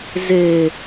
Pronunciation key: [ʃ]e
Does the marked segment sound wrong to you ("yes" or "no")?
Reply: yes